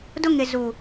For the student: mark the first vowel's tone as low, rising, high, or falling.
high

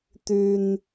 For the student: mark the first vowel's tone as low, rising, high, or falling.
high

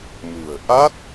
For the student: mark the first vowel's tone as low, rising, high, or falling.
low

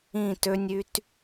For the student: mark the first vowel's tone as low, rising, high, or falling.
falling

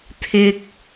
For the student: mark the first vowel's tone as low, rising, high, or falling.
high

